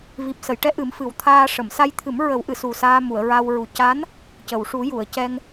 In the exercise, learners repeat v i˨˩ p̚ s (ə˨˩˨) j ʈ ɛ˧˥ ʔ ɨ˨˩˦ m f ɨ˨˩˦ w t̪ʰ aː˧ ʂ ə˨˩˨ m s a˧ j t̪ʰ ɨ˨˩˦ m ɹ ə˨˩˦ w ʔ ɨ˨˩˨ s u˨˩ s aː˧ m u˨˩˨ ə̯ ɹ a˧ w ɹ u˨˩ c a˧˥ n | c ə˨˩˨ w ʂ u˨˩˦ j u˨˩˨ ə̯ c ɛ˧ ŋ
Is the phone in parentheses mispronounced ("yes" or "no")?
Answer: no